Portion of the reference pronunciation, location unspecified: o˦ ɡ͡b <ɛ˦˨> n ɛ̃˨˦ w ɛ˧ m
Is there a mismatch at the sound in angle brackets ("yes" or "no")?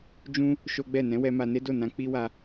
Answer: no